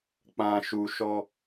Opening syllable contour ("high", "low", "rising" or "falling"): low